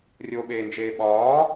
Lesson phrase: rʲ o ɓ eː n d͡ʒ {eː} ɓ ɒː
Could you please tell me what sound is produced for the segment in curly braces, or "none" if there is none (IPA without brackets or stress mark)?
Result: eː